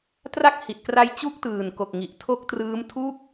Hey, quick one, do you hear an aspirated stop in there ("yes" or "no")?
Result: yes